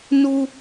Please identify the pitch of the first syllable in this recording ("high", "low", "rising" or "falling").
high